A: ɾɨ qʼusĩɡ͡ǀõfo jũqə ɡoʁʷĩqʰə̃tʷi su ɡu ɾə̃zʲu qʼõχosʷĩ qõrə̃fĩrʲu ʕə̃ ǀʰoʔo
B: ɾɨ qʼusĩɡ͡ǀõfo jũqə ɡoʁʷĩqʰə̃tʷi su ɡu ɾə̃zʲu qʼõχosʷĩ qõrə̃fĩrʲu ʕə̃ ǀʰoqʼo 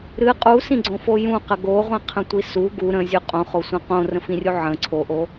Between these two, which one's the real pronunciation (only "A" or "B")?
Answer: A